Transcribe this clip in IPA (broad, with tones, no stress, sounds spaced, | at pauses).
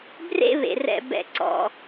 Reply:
b r ḛ˧ β ḛ˨ r ɛ̰˧ b ɛ̰˧ ǀ ɔ̰˧